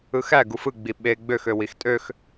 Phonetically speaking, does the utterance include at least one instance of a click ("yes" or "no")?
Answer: no